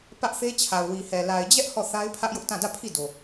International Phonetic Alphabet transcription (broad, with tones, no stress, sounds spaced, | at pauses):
p ä˦ ʔ θ e˦ t͡ɕʰ a˨ ʊ̯ w i˨ h ɛ˨ l a˨ ɪ̯ d͡ʑ ɛ˦ ʔ h ɔ˦˨ θ a˦ ɪ̯ pʰ ä˦ ʔ j ʊ˦ ʔ t ã˦˨ d ä˦˨ pʰ i˦˨ d o˨